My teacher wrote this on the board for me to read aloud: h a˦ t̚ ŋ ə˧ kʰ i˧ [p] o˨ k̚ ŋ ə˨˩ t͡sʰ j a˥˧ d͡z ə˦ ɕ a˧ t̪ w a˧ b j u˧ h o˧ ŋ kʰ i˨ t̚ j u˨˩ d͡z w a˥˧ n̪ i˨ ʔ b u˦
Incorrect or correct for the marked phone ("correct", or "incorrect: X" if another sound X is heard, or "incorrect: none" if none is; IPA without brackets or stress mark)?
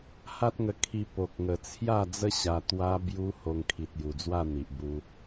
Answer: correct